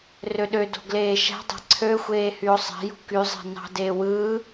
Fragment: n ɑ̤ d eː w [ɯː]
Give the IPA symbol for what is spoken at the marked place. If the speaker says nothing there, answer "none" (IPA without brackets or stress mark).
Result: ɯː